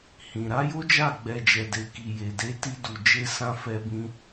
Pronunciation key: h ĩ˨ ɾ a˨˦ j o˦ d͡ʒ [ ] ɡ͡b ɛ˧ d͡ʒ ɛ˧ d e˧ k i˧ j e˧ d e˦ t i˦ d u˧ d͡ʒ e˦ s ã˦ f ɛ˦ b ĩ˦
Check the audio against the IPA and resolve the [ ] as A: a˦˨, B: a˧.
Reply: A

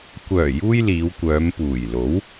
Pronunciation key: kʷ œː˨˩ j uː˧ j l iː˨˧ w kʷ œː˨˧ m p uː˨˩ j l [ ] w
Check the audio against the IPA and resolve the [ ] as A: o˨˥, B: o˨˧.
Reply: A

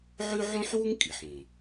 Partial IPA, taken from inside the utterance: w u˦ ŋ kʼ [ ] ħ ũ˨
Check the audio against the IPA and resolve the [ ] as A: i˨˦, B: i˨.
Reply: B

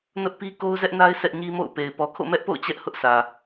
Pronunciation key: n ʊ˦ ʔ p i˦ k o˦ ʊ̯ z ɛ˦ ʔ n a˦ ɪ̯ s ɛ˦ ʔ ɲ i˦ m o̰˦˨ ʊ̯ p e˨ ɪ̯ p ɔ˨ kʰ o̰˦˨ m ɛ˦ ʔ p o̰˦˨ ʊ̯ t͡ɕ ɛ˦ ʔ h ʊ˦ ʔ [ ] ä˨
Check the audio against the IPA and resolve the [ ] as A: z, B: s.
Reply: B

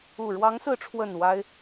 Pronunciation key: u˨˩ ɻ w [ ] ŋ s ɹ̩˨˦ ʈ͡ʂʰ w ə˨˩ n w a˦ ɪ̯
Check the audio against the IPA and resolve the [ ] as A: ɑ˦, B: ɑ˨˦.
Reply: B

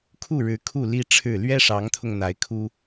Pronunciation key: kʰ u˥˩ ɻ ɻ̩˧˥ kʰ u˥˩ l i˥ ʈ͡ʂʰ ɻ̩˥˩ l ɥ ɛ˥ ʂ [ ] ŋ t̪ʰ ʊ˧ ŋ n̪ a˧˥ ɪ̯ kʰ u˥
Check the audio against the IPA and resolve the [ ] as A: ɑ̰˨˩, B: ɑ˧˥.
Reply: B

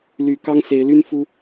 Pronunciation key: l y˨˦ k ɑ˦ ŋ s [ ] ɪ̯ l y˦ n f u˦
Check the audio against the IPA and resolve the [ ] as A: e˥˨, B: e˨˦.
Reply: B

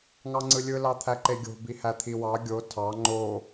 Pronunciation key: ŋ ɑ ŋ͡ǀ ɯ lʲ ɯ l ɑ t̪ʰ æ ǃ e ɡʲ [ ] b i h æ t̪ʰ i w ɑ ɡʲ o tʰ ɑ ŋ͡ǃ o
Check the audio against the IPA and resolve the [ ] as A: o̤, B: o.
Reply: A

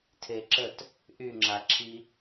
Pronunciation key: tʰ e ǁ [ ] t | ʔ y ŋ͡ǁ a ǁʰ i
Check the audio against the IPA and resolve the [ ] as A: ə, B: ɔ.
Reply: A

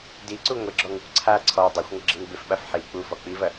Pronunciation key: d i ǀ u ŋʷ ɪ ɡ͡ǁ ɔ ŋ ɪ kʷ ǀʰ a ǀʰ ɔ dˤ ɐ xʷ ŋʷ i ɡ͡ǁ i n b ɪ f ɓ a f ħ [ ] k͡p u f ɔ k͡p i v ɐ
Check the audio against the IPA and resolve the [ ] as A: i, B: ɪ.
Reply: A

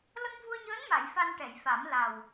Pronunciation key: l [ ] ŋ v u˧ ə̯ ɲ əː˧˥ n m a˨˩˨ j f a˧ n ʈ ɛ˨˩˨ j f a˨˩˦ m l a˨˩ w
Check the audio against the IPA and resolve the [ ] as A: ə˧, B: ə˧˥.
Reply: A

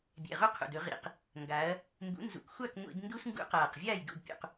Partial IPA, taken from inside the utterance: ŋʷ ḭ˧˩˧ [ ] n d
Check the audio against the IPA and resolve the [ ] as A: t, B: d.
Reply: B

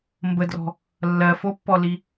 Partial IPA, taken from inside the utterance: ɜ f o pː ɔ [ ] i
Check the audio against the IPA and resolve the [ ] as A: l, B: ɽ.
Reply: A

